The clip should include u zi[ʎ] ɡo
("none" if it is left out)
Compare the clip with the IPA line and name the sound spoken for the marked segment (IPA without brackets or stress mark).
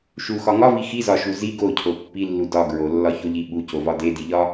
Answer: none